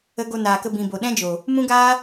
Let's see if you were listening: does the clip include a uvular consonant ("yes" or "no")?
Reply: no